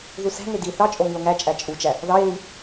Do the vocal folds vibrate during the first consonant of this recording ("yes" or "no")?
yes